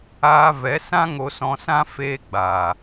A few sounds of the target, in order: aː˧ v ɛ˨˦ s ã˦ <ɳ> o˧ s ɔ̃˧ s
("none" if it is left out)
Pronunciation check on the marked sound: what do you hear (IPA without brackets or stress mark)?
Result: ŋ